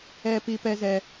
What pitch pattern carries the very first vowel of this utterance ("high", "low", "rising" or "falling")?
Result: low